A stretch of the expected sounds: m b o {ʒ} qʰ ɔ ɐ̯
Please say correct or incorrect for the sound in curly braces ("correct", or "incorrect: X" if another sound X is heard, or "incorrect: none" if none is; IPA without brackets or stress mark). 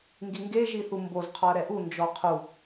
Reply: incorrect: z